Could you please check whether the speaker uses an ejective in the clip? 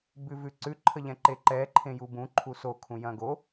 no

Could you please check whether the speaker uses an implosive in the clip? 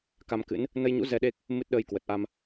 yes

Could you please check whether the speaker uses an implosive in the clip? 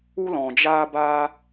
no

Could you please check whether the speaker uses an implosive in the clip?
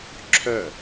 no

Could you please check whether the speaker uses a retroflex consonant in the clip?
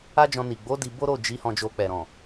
no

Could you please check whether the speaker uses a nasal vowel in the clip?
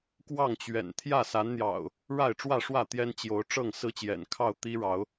no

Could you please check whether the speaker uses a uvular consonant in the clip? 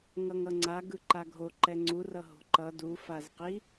yes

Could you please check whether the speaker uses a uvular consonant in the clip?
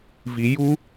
no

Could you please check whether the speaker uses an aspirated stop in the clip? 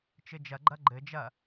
no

